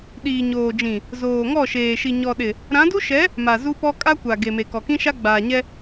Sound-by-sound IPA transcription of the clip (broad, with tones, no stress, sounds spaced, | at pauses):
ɗ iː˨ ɲ oː˨ d͡ʒ ĩ˨ | z oː˨ ŋ ɔ˦˨ ʃ eː˨ ʃ i˨ ɲ ɔ˨ ɗ ɪ˨ | ɾ ã˨˦ d u˦ ʃ ɛ˨˦ | m a˨ z u˦ p ɔ˦ kʼ a˦ kʷ a˨ ɡ e˨ m e˨ k ɔ˨ k ĩ˦ ʃ a˦ ɡ͡b aː˨ ɲ ɛ˦